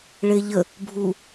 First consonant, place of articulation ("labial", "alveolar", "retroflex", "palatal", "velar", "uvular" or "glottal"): retroflex